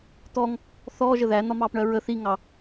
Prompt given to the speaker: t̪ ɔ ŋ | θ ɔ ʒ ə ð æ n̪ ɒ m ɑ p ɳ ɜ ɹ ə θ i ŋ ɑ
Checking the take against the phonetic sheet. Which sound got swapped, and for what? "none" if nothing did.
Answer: none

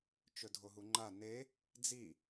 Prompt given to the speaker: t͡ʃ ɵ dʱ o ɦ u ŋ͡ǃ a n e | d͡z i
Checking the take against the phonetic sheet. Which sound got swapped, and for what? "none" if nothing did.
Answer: none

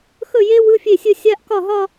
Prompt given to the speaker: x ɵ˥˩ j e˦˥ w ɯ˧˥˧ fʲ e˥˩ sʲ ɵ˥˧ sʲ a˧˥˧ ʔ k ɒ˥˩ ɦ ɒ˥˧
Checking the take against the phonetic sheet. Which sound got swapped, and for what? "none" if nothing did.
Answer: none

